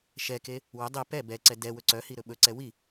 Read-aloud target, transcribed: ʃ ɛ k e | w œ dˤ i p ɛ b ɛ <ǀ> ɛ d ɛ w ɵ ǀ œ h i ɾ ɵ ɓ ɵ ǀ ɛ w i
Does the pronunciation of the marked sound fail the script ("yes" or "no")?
no